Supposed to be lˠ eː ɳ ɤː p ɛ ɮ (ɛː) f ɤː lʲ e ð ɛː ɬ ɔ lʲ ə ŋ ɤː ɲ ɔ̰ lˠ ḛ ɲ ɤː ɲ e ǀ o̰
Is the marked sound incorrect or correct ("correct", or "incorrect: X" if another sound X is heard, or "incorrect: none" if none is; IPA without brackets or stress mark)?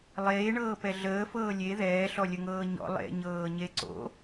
incorrect: əː